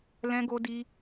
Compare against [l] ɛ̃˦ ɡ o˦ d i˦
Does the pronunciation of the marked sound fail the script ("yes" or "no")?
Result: no